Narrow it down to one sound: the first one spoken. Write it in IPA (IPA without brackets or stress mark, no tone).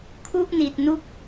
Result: kʰ